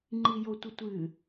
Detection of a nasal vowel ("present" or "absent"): absent